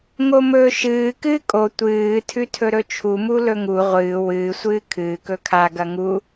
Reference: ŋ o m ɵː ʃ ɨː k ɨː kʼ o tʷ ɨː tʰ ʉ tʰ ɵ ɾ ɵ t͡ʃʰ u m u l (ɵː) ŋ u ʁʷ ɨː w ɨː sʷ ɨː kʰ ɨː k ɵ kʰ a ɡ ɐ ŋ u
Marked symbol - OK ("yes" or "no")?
no